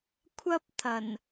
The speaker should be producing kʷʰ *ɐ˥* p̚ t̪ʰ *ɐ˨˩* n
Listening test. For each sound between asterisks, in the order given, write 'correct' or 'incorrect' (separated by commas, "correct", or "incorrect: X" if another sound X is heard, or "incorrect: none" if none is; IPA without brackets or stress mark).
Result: correct, correct